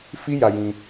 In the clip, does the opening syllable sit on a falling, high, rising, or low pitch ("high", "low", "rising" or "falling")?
high